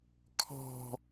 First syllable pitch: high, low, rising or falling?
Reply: high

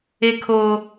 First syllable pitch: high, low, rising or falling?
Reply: high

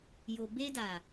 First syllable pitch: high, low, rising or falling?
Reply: low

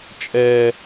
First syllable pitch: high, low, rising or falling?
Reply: high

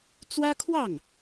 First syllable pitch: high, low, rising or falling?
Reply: high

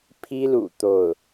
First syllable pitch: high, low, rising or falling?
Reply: high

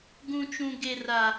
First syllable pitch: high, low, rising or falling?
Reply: high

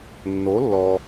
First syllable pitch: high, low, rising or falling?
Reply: rising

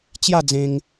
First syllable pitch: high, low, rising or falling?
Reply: falling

